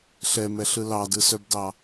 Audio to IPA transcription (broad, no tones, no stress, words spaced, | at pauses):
ɬɛmɛɬɯ lɑdɯsœbdɑ